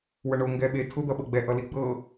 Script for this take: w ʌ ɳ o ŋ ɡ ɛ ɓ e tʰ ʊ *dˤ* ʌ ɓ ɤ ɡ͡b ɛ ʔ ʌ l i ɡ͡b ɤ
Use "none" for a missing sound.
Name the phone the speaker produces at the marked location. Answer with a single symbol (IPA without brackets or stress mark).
d̪